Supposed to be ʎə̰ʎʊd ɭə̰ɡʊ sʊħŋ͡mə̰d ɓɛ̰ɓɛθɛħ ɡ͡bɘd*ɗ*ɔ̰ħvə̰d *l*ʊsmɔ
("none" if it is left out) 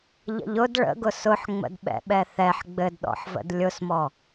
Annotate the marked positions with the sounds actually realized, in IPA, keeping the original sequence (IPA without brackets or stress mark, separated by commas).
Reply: ɗ, lʲ